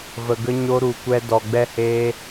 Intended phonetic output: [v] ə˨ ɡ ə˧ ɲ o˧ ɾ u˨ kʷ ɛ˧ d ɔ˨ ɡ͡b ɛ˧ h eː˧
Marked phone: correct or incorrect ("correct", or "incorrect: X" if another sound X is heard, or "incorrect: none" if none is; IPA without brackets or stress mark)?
correct